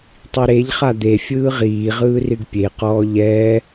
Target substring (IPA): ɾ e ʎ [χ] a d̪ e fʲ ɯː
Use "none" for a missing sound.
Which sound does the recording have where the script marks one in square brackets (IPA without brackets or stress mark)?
χ